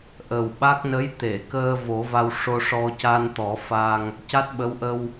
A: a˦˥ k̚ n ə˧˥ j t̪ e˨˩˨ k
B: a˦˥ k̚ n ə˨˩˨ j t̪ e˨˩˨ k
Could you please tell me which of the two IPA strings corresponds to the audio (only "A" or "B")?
A